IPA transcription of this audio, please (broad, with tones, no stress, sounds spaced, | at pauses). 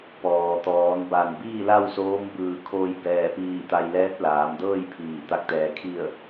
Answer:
p ɔː˩ t̪ ɔː˩˧ n b a˧˩ n b iː˥˨ l a˥˨ w s oː˧˥ m b ɯː˧˩ kʰ oː˧ j b ɛː˧˩ p iː˧˩ t̪ a˧ j l ɛː˧˥ t̚ l aː˩˧ m d ɤː˥˨ j pʰ iː˧˩ t̪ a˧˩ k̚ t̪ ɛː˩ kʰ i˧˩ ə̯